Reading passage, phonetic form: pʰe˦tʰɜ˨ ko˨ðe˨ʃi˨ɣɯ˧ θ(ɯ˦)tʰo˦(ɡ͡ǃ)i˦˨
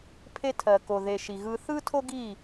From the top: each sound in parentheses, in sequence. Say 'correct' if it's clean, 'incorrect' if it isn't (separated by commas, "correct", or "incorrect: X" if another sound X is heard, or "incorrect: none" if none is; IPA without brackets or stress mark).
correct, incorrect: ɡ